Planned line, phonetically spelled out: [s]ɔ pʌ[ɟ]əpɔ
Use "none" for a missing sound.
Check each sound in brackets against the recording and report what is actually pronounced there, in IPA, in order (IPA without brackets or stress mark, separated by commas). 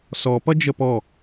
s, d͡ʒ